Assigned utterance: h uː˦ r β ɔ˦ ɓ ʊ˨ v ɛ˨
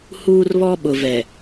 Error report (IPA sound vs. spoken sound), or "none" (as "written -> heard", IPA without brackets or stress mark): none